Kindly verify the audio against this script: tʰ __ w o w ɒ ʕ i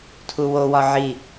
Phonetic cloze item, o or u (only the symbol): u